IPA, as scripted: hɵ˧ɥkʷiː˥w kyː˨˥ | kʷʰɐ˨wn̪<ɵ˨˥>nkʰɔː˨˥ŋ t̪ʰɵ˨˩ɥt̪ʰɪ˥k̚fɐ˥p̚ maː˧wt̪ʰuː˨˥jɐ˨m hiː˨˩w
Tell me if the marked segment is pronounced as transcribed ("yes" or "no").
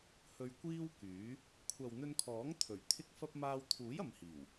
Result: no